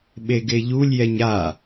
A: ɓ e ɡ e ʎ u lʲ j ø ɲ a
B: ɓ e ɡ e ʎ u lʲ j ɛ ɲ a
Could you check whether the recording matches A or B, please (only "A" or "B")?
B